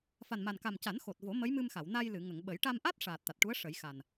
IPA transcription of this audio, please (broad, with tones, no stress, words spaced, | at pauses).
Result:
fa˨˩nma˨˩nka˨˩m ca˨˩˦nxo˨˩t̚vo˨˩˦ mə˧˥jmɨ˧mxa˨˩˨w na˧jlɨ˨˩˨ ŋə˨˩˨ŋɓə˨˩˦j ʈa˧mʔa˦˥t̚ ʂaː˨˩t̚t̪a˨˩t̚ʈu˧˥ə̯ ʂə˨˩˦jxa˨˩n